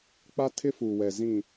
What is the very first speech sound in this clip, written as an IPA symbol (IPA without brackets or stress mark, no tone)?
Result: k͡p